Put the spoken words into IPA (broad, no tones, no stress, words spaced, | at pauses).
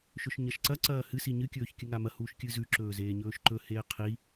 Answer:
ʃɵʃɲɐʃǀɐ ǀɐːhɨ siɲɨ kʲɵːçkʲɨŋamɐ huːʃkʲɨzʉ ǁɵːzeːɲɵːʃǃɵ heːqʰi